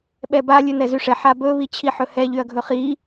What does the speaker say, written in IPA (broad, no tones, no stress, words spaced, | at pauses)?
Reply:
ɓɛba lʲʉnɛzyʂɛ ħabɵ βit͡ɕʰiħɵhɛ ʎyɐ̯ɡʱɵχi